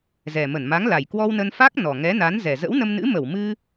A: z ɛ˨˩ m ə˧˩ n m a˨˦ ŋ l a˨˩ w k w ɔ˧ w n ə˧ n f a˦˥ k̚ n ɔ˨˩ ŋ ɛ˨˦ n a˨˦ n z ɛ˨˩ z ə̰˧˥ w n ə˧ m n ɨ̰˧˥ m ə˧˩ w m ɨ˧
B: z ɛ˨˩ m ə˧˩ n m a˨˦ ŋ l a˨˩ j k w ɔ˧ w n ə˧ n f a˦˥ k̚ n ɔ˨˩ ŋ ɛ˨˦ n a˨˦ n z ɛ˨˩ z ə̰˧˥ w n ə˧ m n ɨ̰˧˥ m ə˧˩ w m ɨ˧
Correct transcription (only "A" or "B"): B